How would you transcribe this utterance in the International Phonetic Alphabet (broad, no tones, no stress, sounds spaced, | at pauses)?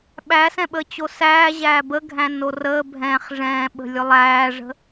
ɓ æ s ɛ̃ ɓ ə t͡ɕ o s æː ʑ æː b ə ɡʱ æ̃ n o r əː bʱ ɛ̃ː χ ʐ ɛ̃ː ɓ ə̤ lʲ ʊ lˠ æː ʐ ə̤